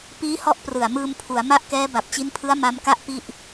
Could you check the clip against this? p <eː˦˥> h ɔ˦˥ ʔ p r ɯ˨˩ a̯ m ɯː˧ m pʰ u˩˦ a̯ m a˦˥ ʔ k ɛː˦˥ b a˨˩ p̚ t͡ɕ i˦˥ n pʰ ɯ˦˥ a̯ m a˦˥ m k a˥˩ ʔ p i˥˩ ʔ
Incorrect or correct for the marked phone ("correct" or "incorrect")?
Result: incorrect